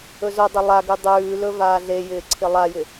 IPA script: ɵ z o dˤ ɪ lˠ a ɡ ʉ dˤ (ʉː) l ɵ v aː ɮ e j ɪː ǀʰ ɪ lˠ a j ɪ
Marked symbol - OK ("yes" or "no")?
yes